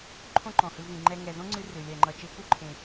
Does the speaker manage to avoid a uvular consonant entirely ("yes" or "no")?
yes